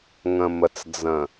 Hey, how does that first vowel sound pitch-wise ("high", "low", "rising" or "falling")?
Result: low